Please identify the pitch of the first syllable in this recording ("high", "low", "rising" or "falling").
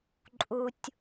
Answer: low